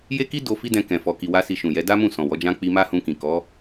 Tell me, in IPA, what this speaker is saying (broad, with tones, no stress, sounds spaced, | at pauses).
j e˦ k i˦ d o˧ f i˦ d ɛ̃˧ k ɛ̃˨ f ɔ˨ k i˨ w a˧ s i˧ ʃ ũ˨ j ɛ˨˦ d a˦ m ũ˦˨ s ɔ̃˨ w ɔ˨˦ d͡ʒ ã˦ k͡p i˧ m a˦ h ũ˧ k ĩ˨ k ɔ˨˦